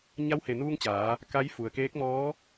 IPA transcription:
ɲa˧˥whe˩nuː˧ŋ t͡ɕaː˩˧ | ka˧˥j fu˩ə̯keː˧˥k̚mɔː˧˥

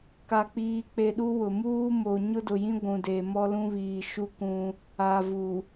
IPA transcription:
ka˨k͡piː˨k͡pe˨ ɗu˦wʊ˨ muː˦mo˨ ɲʊ˦dʊ˨jĩ˦ ɡʷũ˨deː˨mɔ˦lũ˦ βiː˨ʃu˦kũ˦ | a˨vu˨

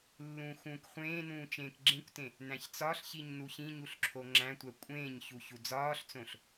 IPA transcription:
lːũːxũːkχʷẽːnũː t͡ʃẽːkɡ͡ǁẽkʷtẽ | næ̃çt͡sɒɬçiɲ nuçĩɲuɬ ǁʰoŋ͡ǁæ̃tʷæ kʷʼẽːɲçu çud͡zɒːɬt͡sõɬ

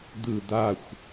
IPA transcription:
d̪ɯ d̪axʷ

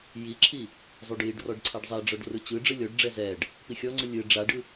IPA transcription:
jiǁʰi | zˤuɖjiɖrɔɖ ǀʰaɖzˤɛɖ͡ʐɔɖ rɯt͡ɕɯɖ͡ʐɯ lʲɔɖɖ͡ʐɛ zɛɖ | pixʲɔŋ͡ǀɯ lʲɯ ɖ͡ʐaɖɯ

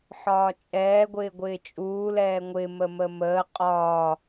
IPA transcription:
ħɒːt͡ʃʼɛː ɡʷɪːɡʷɪːt͡ʃʼuː lɛːŋʷɪ məməməː qʼɒː

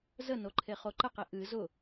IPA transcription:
zənoǃʰe χoǃəqi ʔɨ zʊ

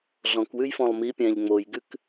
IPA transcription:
ɮɔ̃kwʉj fɔ̃lˠmipʲæ̃ʎ ŋ͡mojɡʉk

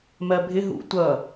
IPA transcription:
mɜbʱɪ ɦṵ tʷʌ

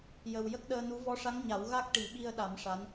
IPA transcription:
jə˨˩w jə˦˥k̚ɗəː˧nu˧˥ vɔ˧˥ʂa˧˥ŋɲa˨˩˦w ɣa˦˥k̚ʈi˨˩˦ɓi˧ə̯ɗa˨˩˦m ʂa˧˥n

